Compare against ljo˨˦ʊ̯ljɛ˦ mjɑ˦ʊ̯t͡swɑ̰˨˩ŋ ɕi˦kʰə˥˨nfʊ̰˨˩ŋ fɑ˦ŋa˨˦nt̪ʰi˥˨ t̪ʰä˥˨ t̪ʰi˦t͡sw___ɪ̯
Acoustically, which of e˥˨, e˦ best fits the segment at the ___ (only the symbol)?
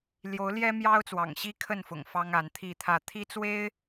e˦